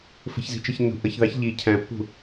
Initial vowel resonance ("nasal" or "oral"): oral